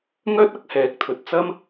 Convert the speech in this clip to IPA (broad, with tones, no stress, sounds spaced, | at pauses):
ŋ œː˥ t̚ ɐ˥ k̚ h ɛː˨˥ k̚ t̪ʰ ɵ˨ t̚ t͡s ɐ˥ m